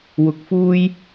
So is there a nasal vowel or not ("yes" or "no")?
no